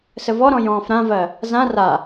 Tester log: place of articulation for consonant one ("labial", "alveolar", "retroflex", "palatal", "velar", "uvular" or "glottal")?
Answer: alveolar